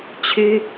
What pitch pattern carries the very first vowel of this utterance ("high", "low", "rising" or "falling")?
high